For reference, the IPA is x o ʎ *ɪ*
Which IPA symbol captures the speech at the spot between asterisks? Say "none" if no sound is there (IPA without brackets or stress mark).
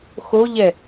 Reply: ɛ